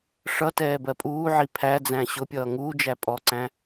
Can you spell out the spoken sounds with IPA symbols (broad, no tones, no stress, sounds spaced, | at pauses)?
ʂ ʌ t ɛː b ɜ pʼ uː ʕ i pʰ æ d͡z æ̃ ɕ ʊ pʲ ʌː ŋ uː d͡ʒ æ pʼ ɔ ǀ æ̃